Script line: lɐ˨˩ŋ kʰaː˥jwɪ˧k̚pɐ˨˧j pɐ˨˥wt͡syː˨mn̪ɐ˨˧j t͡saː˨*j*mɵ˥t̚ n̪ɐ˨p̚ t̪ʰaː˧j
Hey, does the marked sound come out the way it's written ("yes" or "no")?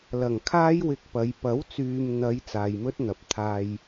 yes